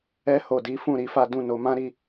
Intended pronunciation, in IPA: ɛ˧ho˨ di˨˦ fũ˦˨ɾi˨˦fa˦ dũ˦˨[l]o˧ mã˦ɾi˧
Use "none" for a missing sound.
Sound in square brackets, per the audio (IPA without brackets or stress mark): n